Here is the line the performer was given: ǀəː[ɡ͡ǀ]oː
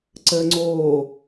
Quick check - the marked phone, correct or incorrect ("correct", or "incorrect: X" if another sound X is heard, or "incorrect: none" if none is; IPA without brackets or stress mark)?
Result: incorrect: ŋ͡ǀ